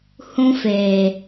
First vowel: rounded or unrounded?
rounded